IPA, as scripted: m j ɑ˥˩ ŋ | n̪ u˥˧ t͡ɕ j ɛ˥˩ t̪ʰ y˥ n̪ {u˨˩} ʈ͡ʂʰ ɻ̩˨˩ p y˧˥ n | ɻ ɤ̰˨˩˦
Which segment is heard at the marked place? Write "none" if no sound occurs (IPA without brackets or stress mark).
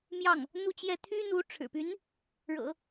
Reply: u˧˥